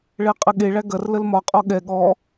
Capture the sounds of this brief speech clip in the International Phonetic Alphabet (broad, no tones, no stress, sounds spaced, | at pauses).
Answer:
ɭ ɛ qʼ ə ɠ e ɭ æ ɡ ɐ r l ə l m ɒ qʼ ɔ ɠ ɛ ɠ ɔ